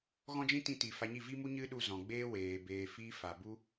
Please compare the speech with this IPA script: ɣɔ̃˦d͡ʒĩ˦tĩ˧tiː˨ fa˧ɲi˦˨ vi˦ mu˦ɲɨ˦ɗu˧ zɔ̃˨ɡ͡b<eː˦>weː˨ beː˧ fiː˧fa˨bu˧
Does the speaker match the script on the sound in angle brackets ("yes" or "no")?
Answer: no